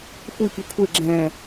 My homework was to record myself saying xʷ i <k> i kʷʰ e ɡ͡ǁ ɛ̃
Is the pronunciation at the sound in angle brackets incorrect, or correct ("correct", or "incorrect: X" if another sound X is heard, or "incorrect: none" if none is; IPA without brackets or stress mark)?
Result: correct